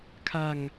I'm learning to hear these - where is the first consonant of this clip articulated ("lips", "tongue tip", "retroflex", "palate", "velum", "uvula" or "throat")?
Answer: velum